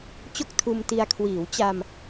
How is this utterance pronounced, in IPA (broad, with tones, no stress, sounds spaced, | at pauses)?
t͡ɕ o˥˩ k̚ tʰ uː˧ m t i˧ a̯ kʰ w iː˩˦ w t͡ɕ a˧ m